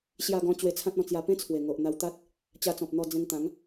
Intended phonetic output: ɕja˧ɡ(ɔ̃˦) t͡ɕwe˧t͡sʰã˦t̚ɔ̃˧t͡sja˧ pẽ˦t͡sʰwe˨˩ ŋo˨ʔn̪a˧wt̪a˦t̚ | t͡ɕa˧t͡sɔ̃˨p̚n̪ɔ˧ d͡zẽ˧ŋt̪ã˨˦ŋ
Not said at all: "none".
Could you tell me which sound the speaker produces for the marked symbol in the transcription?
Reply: ɔ̃˧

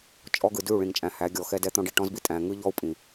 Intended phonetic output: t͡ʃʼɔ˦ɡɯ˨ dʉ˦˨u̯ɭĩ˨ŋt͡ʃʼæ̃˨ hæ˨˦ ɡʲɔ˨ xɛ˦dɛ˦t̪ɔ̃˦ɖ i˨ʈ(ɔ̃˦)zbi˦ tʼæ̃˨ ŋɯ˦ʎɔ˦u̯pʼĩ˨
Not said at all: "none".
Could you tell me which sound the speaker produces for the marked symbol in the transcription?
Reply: ɔ̃˦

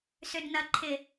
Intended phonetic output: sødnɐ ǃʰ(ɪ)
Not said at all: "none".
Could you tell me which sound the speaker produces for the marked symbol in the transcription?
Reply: ɪ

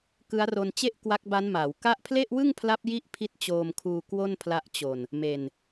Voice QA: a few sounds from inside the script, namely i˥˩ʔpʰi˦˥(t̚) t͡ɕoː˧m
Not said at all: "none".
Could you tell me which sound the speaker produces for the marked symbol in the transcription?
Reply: t̚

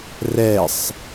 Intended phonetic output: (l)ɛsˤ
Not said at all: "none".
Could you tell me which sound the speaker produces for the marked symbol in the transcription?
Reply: r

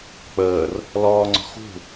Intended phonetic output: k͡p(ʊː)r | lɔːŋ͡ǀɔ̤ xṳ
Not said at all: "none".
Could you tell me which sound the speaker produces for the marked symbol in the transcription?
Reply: əː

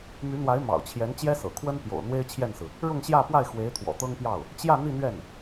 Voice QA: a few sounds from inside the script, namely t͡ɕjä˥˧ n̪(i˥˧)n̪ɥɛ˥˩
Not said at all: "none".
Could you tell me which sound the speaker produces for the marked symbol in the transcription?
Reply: i˥˧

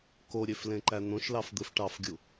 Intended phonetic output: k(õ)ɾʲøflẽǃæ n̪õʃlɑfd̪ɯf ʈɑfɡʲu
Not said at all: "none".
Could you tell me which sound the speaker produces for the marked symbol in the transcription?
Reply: o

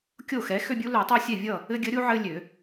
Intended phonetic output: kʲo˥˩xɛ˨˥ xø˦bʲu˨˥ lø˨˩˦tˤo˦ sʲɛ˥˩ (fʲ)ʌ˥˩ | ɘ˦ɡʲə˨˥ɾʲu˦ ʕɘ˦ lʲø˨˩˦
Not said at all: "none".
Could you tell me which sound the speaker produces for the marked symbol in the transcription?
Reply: vʲ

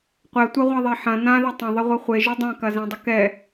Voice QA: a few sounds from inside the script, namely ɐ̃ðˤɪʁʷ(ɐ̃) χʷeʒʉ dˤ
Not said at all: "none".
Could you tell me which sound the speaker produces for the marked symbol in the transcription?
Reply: ɐ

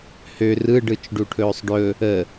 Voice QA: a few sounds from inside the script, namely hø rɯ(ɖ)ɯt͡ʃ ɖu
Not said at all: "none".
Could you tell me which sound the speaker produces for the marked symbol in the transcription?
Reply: ɖ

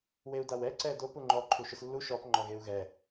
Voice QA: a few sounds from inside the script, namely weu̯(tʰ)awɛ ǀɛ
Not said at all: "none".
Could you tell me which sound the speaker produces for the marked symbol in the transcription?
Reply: d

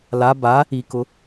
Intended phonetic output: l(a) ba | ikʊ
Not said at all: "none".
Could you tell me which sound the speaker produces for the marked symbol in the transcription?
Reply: a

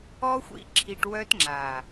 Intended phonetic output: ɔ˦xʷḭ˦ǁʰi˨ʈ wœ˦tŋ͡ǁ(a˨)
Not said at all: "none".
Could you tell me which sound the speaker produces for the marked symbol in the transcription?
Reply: a˨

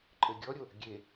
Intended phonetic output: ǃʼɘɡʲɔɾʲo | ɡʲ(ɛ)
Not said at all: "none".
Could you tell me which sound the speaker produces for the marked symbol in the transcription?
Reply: e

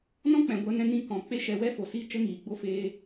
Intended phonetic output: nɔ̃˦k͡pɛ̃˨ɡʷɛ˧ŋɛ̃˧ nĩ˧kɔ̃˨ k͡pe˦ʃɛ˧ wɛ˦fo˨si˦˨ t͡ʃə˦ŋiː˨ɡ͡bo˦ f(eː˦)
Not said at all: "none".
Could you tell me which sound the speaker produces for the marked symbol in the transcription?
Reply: eː˦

